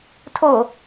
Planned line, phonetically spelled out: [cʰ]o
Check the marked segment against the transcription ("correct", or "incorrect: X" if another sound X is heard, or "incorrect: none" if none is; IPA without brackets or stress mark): incorrect: tʰ